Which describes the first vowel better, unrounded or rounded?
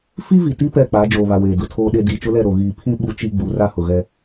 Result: unrounded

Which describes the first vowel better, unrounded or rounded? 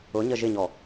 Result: rounded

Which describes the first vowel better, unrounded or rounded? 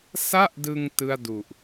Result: unrounded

